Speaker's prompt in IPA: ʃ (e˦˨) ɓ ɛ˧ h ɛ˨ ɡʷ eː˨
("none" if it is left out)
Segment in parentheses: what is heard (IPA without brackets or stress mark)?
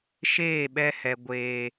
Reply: eː˦˨